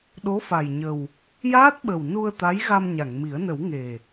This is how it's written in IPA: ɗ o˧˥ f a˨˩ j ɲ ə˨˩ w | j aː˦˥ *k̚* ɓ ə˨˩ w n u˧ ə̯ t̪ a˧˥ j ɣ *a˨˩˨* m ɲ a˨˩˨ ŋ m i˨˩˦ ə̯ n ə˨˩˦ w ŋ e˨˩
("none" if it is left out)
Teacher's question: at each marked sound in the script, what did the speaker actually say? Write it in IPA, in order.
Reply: t̚, a˧

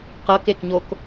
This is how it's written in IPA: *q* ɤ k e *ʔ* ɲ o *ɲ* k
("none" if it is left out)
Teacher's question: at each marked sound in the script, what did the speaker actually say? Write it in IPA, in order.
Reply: q, k, none

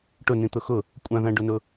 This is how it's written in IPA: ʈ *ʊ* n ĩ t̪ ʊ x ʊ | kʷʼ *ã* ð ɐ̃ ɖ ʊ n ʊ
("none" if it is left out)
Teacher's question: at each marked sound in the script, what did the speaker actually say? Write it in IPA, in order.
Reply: ʊ, ã

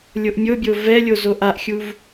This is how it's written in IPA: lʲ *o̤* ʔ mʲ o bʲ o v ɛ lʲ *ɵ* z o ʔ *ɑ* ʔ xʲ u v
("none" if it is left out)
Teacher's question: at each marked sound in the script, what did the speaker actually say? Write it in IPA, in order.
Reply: o, o, a

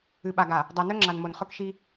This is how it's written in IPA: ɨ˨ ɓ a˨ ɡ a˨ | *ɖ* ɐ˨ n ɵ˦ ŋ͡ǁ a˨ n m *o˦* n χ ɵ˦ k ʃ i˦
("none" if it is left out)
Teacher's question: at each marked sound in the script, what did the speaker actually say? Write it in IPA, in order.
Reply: dˤ, o˨

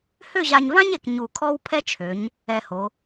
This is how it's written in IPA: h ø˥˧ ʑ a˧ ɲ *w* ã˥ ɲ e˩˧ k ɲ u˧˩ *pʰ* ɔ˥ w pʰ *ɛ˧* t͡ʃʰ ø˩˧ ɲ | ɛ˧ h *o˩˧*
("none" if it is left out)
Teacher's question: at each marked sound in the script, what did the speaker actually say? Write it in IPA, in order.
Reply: v, kʰ, ɛ˥, o˩˧

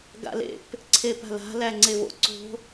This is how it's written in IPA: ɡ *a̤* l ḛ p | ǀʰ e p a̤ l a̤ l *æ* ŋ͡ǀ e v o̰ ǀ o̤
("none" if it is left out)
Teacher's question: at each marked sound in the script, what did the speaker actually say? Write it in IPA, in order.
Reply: a̰, æ

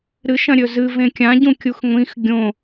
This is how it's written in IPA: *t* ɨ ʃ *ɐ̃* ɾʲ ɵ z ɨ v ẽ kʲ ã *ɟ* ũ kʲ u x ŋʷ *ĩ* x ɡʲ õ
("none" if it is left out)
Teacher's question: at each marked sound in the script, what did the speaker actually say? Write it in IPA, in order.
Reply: ɾ, ɐ̃, ɟ, ĩ

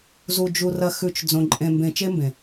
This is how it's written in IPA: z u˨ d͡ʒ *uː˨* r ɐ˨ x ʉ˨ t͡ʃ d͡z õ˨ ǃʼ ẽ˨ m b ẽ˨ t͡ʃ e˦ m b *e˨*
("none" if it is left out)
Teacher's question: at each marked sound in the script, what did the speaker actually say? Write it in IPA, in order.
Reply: u˨, ẽ˨

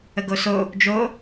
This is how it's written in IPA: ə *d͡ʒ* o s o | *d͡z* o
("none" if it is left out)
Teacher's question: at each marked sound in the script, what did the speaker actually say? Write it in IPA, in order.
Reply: ɡ, d͡ʒ

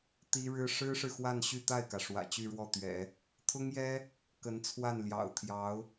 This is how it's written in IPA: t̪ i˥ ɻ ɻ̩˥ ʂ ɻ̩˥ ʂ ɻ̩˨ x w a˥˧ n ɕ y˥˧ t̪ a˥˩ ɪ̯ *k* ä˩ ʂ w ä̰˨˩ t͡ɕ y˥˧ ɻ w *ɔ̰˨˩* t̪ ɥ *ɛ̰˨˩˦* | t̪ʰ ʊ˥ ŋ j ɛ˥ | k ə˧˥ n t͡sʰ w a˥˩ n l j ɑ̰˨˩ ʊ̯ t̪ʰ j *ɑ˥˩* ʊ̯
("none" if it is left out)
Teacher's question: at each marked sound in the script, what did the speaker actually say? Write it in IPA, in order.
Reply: k, ɔ˥˩, ɛ̰˨˩˦, ɑ˧˥

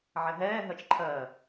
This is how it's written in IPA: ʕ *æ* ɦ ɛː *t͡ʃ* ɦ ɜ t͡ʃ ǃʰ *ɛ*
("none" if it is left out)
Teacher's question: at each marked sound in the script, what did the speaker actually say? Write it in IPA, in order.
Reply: ɛ, none, ɜ

